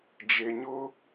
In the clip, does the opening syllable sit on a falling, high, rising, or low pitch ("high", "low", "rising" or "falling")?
low